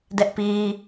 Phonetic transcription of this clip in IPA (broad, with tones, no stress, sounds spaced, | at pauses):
d ɛ˦ ʔ p i˦